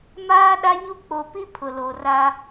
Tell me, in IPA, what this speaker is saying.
m aː˦ ɗ a˦ ɲ u˦ k͡p o˨ p i˦ pʰ ʊ˨ l o˨ r a˦

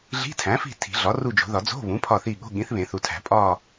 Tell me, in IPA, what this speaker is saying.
ɮ i̤˧˥˧ tʰ æ̃˩˥ f i̤˦˨ tʰ i̤˨˩˦ ɮ ɒ˩˥ r u˦˨ d͡ʒ o̤˨˩˦ ð ɒ˨˩˦ d͡z o̤˧˥˧ β ũ˩˥ pʰ ɒ˦˨ θ i˦˨ ɠ o̤˧˥˧ ɠ ĩ˩˥ θ β ẽ˨˩˦ θ u˨ tʰ æ̤˨˩˦ pʼ ɒ˦˨

